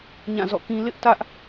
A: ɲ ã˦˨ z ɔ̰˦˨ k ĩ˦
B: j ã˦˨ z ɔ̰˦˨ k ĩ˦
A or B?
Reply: A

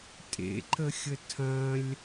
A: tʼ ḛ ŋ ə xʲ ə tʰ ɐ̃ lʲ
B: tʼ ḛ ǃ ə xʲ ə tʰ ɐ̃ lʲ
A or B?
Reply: B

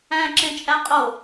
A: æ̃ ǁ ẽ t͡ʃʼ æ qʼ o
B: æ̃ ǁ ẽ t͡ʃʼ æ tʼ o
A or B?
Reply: A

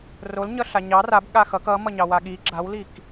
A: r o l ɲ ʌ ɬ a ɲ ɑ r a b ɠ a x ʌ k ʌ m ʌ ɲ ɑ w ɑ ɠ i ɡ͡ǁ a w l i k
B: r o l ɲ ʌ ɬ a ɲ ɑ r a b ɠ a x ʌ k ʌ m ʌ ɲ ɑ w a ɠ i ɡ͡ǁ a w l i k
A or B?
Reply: B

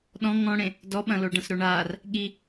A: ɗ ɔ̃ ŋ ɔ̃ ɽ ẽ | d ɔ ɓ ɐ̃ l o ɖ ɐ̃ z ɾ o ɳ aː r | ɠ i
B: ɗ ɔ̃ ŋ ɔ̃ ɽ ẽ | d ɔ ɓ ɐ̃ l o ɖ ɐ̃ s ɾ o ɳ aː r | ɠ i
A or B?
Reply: B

